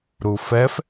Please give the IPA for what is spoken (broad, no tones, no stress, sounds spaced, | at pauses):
ɾ u f ɛ f